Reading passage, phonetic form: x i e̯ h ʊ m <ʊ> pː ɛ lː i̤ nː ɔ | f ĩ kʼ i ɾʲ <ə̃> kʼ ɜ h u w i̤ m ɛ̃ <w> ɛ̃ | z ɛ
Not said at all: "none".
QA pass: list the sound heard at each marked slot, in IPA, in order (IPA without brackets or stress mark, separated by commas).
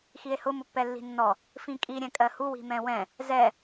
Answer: ʊ, ɛ̃, w